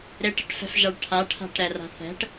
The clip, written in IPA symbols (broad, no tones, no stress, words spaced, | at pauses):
ɾeʈɛ̤ʈfɛ̤fʒaɭ ʈʰaʈʰa̤ʈɾɛra̤ θɛ̤ʈ